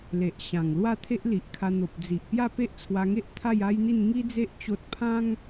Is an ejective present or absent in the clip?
absent